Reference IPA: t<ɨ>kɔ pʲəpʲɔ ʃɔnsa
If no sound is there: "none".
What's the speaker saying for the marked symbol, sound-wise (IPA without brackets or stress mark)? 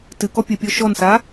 ɨ